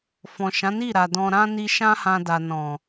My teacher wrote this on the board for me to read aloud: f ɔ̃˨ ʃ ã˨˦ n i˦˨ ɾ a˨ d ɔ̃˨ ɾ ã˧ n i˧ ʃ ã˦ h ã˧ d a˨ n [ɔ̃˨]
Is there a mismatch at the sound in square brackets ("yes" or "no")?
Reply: no